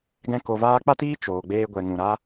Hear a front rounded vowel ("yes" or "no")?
no